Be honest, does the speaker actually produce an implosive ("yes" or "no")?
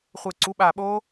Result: yes